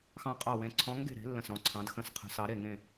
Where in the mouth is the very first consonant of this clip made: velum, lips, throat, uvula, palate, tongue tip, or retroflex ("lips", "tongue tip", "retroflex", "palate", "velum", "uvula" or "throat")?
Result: velum